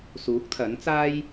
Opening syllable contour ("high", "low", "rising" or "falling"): rising